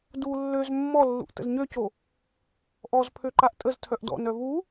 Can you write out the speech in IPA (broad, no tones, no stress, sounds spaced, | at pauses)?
d u lː ø z mː ɔ lː ṵ ʔ t ə̰ z ɲ ø c o | ʔ ɔ z pʰ ø ǃ a ʔ tʼ ə z tʰ œ ʔ d ɔ̰ n œ v u